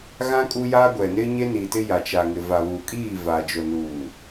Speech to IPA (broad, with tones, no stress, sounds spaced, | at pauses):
ɣ ã˦ kʼ u˦ j aː˦ ɡʷ ɛ˨ n ɪ˦ ɲ e˦ n i˨ t ɪ˦ j a˨ t͡ʃ a˨ ŋ ɪ˨ v a˨ β uː˨ kʼ iː˦˨ v a˨ d͡ʒ o˨ n uː˨